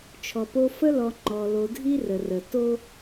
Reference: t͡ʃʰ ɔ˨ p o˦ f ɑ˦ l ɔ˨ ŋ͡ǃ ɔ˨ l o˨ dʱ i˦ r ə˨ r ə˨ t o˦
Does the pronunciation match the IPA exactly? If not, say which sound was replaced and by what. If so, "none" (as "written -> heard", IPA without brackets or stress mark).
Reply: ɑ˦ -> ə˦